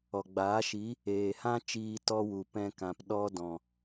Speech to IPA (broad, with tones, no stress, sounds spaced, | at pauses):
ɔ˨ ɡ͡b aː˨˦ ʃ i˨˦ | eː˨ h ã˦ t͡ʃ iː˧ t ɔ˧ w u˨ p ɛ̃˧ k ã˨ p ɗ ɔ˦ d ɔ̃˨